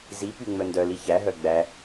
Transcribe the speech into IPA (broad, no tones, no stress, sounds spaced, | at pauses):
z i p y ŋ͡m œ n d œ l i ç æ ɦ œ ɡ͡b æ